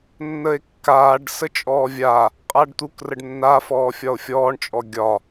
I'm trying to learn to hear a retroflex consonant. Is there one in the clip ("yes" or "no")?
yes